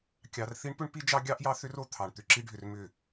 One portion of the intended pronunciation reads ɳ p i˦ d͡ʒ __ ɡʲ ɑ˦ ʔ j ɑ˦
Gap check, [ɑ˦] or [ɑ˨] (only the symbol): ɑ˦